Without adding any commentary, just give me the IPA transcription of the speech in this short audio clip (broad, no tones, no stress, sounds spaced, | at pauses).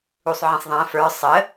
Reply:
u sˤ ʕ ĩ sˤ ðˤ æ̃ f ə˞ sˤ ə